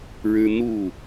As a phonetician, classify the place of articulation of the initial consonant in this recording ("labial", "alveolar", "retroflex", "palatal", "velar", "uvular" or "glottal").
retroflex